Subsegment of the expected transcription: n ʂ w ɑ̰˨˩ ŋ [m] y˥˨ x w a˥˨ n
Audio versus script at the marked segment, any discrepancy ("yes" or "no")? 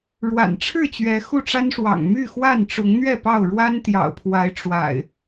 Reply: no